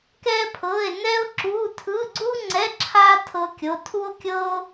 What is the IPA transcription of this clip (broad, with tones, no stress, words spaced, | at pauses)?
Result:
kɛ˥pʰɤ˧˥˧e̯ nɛ˥o̯ǁu˧˥˧ tʰɯ˧˥˧ɡ͡ǀu˥ŋ͡ǀɛ˧˥˧ ǁʰa˥ tʰɤ˥kʲo˧˥˧ tʰu˥o̯kʲɤ˥o̯